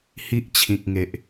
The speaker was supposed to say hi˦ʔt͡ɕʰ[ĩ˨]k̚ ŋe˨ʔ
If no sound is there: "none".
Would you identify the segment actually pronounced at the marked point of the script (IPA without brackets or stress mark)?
ĩ˨